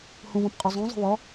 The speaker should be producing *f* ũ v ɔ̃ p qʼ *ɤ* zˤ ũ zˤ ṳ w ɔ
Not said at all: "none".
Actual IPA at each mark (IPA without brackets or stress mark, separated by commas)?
h, o